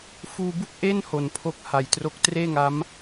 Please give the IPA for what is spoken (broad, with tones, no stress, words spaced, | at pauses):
fuː˧bu˥˩k̚ʔe˥˩n ho˩˦npʰo˦˥k̚ha˨˩jtro˦˥k̚ treː˥˩ŋa˦˥m